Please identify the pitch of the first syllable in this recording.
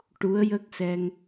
rising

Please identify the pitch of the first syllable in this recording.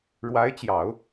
rising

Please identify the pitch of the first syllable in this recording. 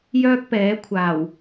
high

